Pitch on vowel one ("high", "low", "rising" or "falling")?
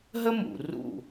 high